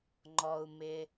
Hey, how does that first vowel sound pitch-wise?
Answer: low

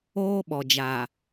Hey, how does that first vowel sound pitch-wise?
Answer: high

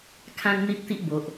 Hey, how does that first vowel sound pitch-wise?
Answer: high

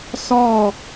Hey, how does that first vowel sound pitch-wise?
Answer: falling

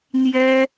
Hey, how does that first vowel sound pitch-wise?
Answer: high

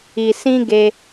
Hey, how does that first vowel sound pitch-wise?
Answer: low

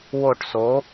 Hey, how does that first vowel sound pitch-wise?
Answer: falling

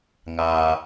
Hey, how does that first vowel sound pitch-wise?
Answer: low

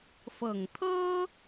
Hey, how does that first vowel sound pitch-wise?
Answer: low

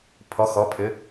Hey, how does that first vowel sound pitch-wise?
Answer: rising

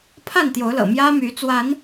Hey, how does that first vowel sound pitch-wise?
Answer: falling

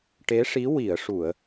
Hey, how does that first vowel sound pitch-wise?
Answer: rising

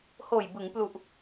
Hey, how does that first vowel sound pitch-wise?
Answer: low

